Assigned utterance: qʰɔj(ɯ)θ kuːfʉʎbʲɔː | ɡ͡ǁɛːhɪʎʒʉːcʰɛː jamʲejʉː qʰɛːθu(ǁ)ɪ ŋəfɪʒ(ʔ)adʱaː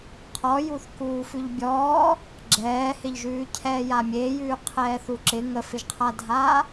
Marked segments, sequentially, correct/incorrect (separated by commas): incorrect, correct, incorrect